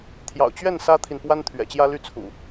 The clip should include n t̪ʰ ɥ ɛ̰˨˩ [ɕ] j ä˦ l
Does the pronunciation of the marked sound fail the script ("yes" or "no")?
yes